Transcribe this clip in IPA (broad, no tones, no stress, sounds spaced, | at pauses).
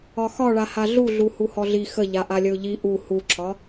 ɒ x ɒ ɭ a h a ɮ u ɮ u h u h ɔ ɮ i x ə ʎ a ʔ a lʲ ə ʊ̯ ʎ i ʔ u h u ǁʰ ɒ